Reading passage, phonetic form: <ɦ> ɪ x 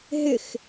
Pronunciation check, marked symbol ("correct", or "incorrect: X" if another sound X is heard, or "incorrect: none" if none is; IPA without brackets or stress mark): correct